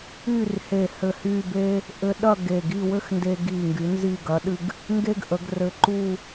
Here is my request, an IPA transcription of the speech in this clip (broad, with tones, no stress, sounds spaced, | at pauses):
y˥˧ r h e˧˩ h ɘ˧˩ h y˥˧ b e˥ | ʔ ɘ˧ ɗ ɐ˥˧ ɡ e˧˩ ɡ i˥˧ w ɘ˥ x n d e˧ ɡ i˧˩ ŋ ɡ y˩˧ n z i˧˩ ɡ ɐ˩˧ ɗ ɨ˧ ɡ | ŋ ɡ e˥ ɡ ʔ ə˩˧ ɡ r ɘ˧ ǃ u˥˧